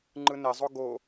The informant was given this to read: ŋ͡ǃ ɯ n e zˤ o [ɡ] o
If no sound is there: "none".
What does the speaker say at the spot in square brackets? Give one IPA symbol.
ɡ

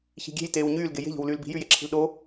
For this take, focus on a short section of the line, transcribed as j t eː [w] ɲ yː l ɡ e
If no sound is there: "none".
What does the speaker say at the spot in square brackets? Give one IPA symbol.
w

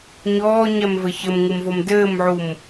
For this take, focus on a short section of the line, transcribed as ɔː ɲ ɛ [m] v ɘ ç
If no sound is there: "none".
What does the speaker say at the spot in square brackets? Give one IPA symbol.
m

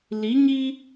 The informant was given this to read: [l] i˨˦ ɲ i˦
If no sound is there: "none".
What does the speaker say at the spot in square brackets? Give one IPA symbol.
l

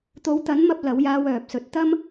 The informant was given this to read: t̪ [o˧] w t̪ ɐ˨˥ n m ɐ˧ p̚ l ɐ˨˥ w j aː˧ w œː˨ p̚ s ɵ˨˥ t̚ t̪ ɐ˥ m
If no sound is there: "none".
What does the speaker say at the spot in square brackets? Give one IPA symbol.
o˨˧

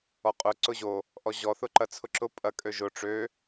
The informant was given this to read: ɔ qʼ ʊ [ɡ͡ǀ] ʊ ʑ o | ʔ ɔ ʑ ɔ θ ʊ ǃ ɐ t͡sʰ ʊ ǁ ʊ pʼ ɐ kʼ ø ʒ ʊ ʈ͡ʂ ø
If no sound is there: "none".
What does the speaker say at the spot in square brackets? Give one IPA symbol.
ǀ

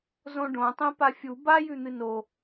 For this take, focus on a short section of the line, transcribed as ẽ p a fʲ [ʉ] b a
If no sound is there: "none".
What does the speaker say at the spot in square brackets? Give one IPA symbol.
u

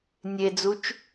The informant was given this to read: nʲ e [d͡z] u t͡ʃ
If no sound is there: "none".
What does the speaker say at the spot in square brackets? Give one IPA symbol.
d͡z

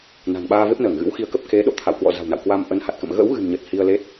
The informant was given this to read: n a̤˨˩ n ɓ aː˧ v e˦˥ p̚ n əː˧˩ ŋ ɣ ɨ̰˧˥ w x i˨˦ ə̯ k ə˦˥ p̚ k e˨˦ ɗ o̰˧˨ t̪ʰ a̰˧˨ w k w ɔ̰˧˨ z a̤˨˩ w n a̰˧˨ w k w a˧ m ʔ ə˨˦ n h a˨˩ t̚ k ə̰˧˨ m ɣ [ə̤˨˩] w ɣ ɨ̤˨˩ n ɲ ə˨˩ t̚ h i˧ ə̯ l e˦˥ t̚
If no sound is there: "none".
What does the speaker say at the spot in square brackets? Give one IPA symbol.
ə̰˧˥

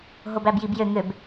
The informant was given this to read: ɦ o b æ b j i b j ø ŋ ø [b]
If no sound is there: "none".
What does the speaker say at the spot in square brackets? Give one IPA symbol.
b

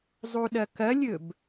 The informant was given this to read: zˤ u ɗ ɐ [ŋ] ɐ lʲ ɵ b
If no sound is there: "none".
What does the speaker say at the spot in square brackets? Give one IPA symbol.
k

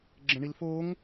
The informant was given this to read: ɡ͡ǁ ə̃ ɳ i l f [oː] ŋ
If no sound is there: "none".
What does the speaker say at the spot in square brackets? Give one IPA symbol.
oː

